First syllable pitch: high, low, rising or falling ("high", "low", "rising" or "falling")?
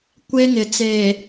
high